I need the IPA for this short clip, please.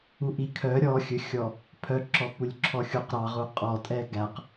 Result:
u ʔ i kʰ œ ɾʲ ɔ xʲ ɵ xʲ ɔ | pʰ œ ǁ ɔ p u lʲ ǁʰ ɔ xʲ u q ɾ ɑ ʁ u qʼ ɔ tʼ ɛ ɡ æ q

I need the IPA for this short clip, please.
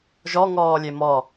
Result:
ʒ ɔ ŋ ɔː lʲ e m ɔ

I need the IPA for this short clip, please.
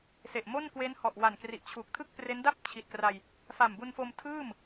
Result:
s e˨˩ ʔ m o˥˩ n k w e˦˥ n h ɔ˨˩ ʔ w a˨˩ n k r i˨˩ ʔ t͡ɕʰ uː˨˩ k̚ tʰ ɯ˥˩ k̚ p r e˦˥ n d a˥˩ p̚ t͡ɕʰ i˨˩ t̚ k r a˧ j | f a˨˩ m b u˧ n f o˧ m tʰ ɯː˥˩ m

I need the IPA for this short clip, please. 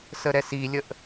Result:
s ə ɾ ɛ s i lʲ ə ʔ

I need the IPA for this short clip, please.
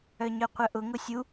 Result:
œ ɲ œ qʷ œ ʔ ʊ ŋ ʊ sʲ u

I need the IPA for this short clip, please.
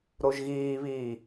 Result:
ɾ o ʒ ɣ iː β iː

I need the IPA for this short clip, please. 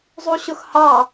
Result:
zˤ u ɕ ʊ x h ɑ

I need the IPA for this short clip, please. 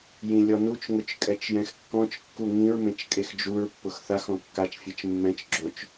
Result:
j ĩ lʲ ɔ n u t͡ʃ ŋ ʊ t͡ʃ kʼ ɛ t͡ʃ j ɛ̃ x kː ɔ̃ t͡ʃ kː u ŋ ĩ ɹ m ẽ t͡ʃ kʼ e x d͡ʒ u ɹ pː ʊ x θ a x ɔ̃ kː a t͡ʃ fʲ e t͡ʃ mː ɛ̃ t͡ʃ ɡ͡ǁ o t͡ʃ

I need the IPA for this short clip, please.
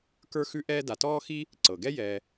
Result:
k ə˞˥ x ʉ˥ ʔ ɛː˥ d a˨ t ɔː˥ x i˥ | ǀ ɤ˩ ɡ ɛ˥ j ɛ˨

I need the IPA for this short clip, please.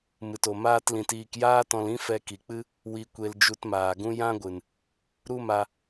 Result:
m ɨ˨ t o˨ m aː˦ t l ĩ˧ t iː˧ k j aː˦ t ɔ̃˧ l ĩ˦ f ɛ˧ k i˨ k͡p ɨ˦ | w i˧ kʷ e˧ l d͡ʒ u˧ t m aː˨ ɡ ũ˦ j ã˦ ɡʷ ɨ˨ n | ɾ u˦ m a˧

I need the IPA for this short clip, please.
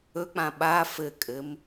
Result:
ɵ k͡p ã ɓ a f ɘ kʼ ɘ m

